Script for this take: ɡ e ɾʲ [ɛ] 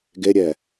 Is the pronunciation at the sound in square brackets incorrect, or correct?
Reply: correct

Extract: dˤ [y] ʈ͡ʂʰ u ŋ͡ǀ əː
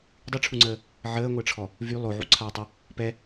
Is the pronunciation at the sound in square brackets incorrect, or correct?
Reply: correct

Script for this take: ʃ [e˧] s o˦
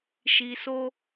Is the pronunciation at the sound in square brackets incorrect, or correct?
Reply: incorrect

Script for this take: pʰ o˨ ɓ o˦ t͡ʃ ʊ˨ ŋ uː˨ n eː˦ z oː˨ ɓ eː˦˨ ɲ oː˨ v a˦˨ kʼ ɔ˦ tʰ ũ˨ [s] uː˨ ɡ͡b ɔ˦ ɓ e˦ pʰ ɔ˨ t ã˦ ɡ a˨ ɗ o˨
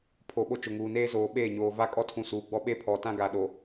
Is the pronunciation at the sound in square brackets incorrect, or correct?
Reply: correct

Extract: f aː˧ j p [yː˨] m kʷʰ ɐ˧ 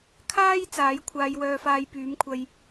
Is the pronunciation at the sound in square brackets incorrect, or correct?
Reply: incorrect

